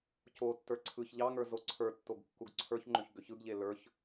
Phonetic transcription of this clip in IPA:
c o tː ə˞ ǀʰ ɯ ç ʎ ɑ ŋ ə˞ z o ǀʰ ə˞ tː o ɡ kː u ɡ ǀʰ ə˞ ç ŋ͡ǃ ʏ ç ɡ ʏ ç ɯ ɡ ʎ e l ə˞ ç

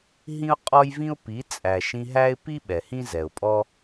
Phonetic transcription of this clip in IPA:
ɦ ĩ˦ ʊ̯ qʼ ɔ˦ j v ĩ˦ ʊ̯ p i˨˦ t͡sʼ æ˨ ʃ ĩ˧ ɦ æ˦ ɪ̯ p i˦ ɓ ɛ˨ h ĩ˦ z ɛ˨ ʊ̯ pʼ ɔ˦

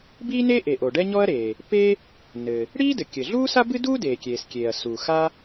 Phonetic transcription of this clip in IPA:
b iː˥ n e˥ ʔ e˩ ʔ o˩ ɖ ɛ˥ ɲ ɔ˥ ɐ̯ ɾ eː˩ | p e˥ | n ɘ˩ | ɽ iː˥ d ɘ˩ kʲ ɘ˩ ɮ uː˥ s a˥ b ɨ˥ d uː˥ d eː˩ kʲ eː˩ s kʲ eː˩ ɐ̯ s u˩ x a˥

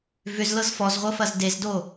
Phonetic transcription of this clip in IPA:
v ʏ z l ɤ z f ɔ z ʁʷ ɤ f ɐ z d e z d o

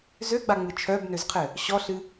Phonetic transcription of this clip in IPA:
z ø ɡ͡b a ŋ͡m ɨ t͡ʃʰ œ b n ø z qʰ ɘ | ɕ ɔ ɬ ɨ

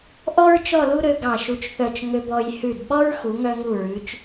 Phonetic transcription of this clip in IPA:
ʔ ɔ˥ ɹ t͡ʃ ɔ˥˧ l u˥ ɾ ø˧ ɡ ɑ˧˩ ʃ u˧ t͡ʃ θ œ˧˩ t͡ʃ ŋ ø˧ b ɔ˧ j h ʉ˧˩ d ɓ ɔ˥ ɹ x u˩˧ ŋ œ˧ ŋ u˧˩ ɹ ʉ˩˧ t͡ʃ

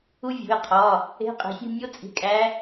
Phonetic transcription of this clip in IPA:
u˦˥ vʲ ṳ˩˧˩ ɪ̯ qʰ ɒ˩˧˩ | e̤˧˥˧ qʼ e̤˨˦ sʲ ṳ˧˥˧ nʲ o˦˥ t͡sʼ i̤˨˦ kʼ æ˨˦

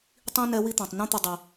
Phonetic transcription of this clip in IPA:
tˤ ĩ˦ n ɛ˦ w i˦ t̪ ã˨ tˤ n ũ˦ t̪ ɘ˧ dˤ i˨

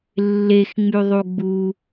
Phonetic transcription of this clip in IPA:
lː e x ŋ͡m y ðˤ u ɡ͡b u

